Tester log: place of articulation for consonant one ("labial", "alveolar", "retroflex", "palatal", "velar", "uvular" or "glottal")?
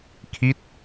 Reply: velar